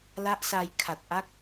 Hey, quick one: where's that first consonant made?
tongue tip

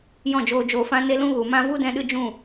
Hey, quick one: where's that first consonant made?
palate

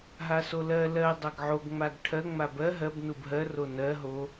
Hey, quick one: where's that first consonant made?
throat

